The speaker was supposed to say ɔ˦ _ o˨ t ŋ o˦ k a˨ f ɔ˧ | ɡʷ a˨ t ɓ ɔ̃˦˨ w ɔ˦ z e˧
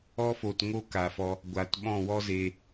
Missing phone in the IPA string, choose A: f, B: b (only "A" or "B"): A